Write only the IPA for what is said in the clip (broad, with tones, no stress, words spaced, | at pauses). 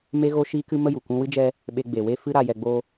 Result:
me˧ɣo˧ʃiː˧kɨ˧ mə˦ju˨ kʷũ˦ wɨ˦d͡ʒɛ˦ | ɓe˧ɡ͡be˨we˦ fɨ˦ɾa˧jɛ˧ɡ͡bo˦